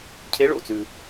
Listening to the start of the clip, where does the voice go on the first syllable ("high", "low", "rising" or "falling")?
rising